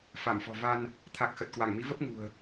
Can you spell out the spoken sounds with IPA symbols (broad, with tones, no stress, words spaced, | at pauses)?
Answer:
fa˧˩mfɔ̤˨˩va˧n | t̪ʰa˨˩k̚ xə˨˩t̚kwa˧˩ŋmi˨˦və˦˥p̚ ŋṳ˨˩ə̯